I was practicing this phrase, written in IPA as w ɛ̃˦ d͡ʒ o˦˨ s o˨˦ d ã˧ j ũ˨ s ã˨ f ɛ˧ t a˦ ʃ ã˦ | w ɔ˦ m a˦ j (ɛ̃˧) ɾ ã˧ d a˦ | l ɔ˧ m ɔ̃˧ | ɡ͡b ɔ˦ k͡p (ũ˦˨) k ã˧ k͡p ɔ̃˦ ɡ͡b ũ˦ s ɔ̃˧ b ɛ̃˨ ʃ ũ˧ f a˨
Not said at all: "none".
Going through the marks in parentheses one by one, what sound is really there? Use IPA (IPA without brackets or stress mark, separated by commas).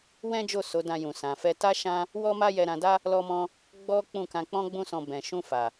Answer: ɛ˧, ũ˦˨